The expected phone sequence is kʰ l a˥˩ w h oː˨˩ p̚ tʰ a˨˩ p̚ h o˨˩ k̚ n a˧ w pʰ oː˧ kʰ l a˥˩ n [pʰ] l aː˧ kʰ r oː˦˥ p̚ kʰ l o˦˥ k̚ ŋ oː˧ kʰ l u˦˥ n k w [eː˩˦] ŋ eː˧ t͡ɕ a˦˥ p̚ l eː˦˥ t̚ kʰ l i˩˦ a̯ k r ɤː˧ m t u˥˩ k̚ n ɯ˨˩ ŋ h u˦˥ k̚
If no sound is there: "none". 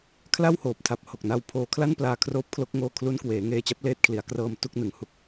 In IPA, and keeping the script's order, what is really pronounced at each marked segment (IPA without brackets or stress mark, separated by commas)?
p, eː˩˦